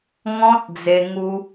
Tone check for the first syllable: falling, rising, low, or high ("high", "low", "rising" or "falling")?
high